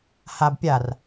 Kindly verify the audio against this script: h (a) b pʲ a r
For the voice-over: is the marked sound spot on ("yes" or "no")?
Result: yes